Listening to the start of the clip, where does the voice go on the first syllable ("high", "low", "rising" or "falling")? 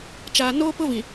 low